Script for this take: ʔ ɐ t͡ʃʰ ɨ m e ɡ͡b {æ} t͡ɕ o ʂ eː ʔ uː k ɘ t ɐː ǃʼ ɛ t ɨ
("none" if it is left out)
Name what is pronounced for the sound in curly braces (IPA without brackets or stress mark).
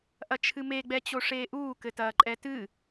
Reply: ɛ